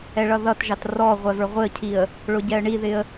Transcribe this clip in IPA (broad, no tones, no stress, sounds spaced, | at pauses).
ɛ ɭ ʌ ð ʌ t ʒ ɑ t r ɔ ʁʷ ɛ v ə˞ ʁʷ ɪ ə̯ cʰ i ə̯ | ɭ ʊ ɟ ɛ ə̯ ɳ i ð ɪ ə̯